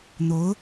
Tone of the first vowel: rising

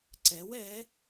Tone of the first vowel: rising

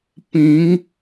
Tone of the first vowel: rising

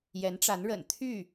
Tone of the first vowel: rising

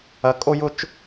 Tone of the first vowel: high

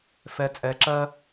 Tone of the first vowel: low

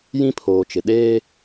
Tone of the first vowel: high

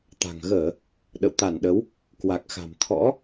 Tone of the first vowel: low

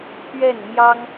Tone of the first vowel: falling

